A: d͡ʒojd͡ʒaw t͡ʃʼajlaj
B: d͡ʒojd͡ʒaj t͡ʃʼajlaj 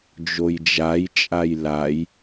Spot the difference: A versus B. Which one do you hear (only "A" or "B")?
B